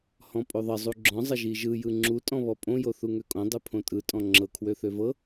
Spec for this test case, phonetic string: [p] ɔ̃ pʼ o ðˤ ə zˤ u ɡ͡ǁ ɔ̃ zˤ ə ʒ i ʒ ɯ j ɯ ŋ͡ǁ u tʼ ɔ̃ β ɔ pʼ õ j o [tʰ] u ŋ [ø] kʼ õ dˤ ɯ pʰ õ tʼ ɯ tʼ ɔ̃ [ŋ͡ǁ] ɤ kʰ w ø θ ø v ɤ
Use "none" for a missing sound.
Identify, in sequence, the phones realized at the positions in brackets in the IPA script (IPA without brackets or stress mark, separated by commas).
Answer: h, θ, ø, ŋ͡ǁ